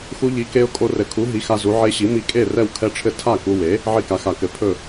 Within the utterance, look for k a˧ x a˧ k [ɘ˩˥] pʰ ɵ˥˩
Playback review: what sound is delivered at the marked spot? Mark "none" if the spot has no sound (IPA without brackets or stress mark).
ɘ˩˥